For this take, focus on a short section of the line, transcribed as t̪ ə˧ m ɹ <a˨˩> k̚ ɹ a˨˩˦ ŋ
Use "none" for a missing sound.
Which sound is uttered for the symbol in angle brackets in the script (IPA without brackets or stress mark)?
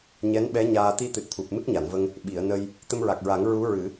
a˨˩